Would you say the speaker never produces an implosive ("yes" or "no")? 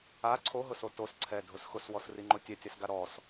yes